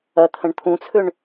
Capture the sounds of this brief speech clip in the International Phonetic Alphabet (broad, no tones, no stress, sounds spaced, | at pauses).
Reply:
ɐ t̪ʰ ə̃ ɳ t̪ʰ ũ t͡sʰ ʏ ɳ